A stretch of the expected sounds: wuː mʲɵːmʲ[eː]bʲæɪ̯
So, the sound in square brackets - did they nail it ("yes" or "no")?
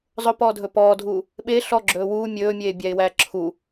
yes